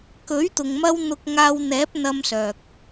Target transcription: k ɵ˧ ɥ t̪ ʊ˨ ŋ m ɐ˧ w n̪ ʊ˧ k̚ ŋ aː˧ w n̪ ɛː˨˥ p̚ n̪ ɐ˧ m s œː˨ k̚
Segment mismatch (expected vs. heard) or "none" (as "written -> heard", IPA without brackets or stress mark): ɵ˧ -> ɵ˨˥